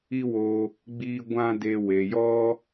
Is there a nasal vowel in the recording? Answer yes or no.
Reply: yes